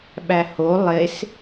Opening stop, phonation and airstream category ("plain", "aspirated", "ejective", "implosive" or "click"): implosive